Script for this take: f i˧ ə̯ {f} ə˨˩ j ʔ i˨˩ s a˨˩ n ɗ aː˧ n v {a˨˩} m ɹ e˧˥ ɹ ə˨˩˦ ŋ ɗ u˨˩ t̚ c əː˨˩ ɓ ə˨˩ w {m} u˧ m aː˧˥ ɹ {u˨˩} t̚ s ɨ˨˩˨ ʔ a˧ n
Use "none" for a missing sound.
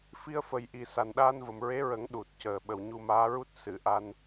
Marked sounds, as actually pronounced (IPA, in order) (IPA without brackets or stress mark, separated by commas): f, ə˨˩, ɲ, u˦˥